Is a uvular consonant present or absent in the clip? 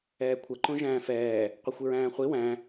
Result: present